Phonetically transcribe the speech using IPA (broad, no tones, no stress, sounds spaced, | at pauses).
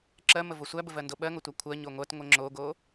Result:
ǁ ɜ m ə v o sʷ æ b ə v ɜ n d o ɓ ɜ ŋ o tʷ æ kʷʰ ɜ ɲ o ŋʷ ɜ t ŋʷ ə ŋ͡ǁ o ɡ o